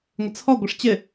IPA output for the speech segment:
ŋʷ ɪ t͡sʰ ɔ ɡʷ ɪ ʂ t͡ɕ ɪ

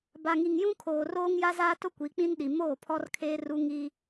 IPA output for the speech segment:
b a˨ ŋ i˨ ŋ j ũ˦ kʰ oː˨ r oː˦ ŋ j a˦ z aː˦ t ʊ˦ kʷ i˨˦ k͡p ĩ˦ n ɗ i˨ m oː˦˨ pʰ ɔ˦ r kʰ eː˦ r u˦ ŋ i˦

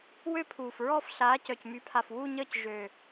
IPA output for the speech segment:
w ø˥˧ pʰ uː˨˩ f ɹ ɔː˥˧ f ɬ aː˨˦ c œ˨˩ c m y˨˦ pʰ a˨˩ f w u˥˧ ɲ əː˥˧ c ʒ ø˨˩

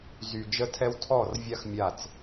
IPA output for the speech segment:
z y˨ d͡ʒ ə˦ tʰ ɛ˦ w tʰ ɔ˦˨ r vʲ a˦ x mʲ a˦˨ t͡s

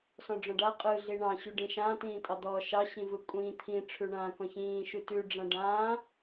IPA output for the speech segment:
s ɔ̃ ɖ͡ʐ ɔ̃ ɖ a qʼ ɯ ɮ i ɳ ɑ̃ ɕ ʉ ɖ ĩ ʃ ã t ĩː tʼ ɑ d̪ ɔː ʃ ɑ ɕ ĩ v ɯ kʷʼ ĩː t̪ʰ ĩ ʈ͡ʂʰ ʉ ɳ ãː k ɔ̃ ç ĩː ʃ ʉ t ʉ ɖ͡ʐ ã ɖ ãː

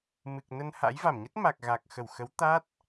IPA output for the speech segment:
m ɨ˨˩ k̚ n ə˧ n h a̰˧˥ j v a˧˩ m ɲ ə˦˥ t̚ m a˨˩ k̚ ɣ a˨˩ k̚ x ə˧˩ w x ə˨˦ w t̪ a˦˥ t̚

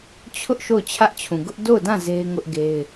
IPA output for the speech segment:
t͡ɕʰ ʊ˦ ʔ ʃ o˦˨ ʊ̯ t͡ɕʰ ä˦ ʔ t͡ɕʰ ũ˨ ɡ ʊ˦ ʔ d o˦˨ ʊ̯ d ã˦˨ z e˦ ɪ̯ ŋ ʊ˦ ʔ ɡ e˦ ɪ̯

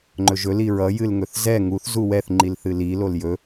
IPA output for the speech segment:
ŋ͡ǃ ɵ ʒ ɵ l i ɹ ʌ j ɨ l ŋ ɵ θ z ɛ ŋ u θ z u w ɛ θ ŋ͡ǃ i l θ ɨ l i l o l j ɵ

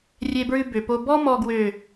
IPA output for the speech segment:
rʲ e˧ b ɹ ʉ˧ b ø˨ p o˧ b ɔ˧ m ɔ˨ ɡ w ø˨

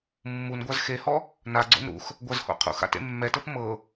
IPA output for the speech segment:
mː u n ɡʷ a z x e h ɔ | n a ɡ͡ǀ o̰ n ɾ ṵ x | ɡʷ a z h o̰ qʰ ṵ x a̰ t ḛ mː ɛ t ɤ p m ɤ

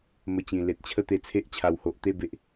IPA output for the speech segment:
m ə˧ t͡ɕ ĩ˨˩ l e˨ t̚ t͡ɕʰ ə˥˧ t̪ e˧ t͡sʰ e˦ ʔ t͡ɕʰ a˨˩ w h o˨ ʔ t̪ e˥˧ b e˨ ʔ

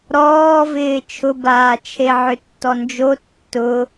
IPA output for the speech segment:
ɾ ɔː v ɪː t͡ʃʰ ʊ b aː t͡ʃʰ e ʕ ʏ tː ɔ n d͡ʒ o tː ʊ

